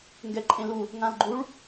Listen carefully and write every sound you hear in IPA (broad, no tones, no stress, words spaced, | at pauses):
ŋɡɛǃʼẽlu | ŋãlɡ͡ǃuɭ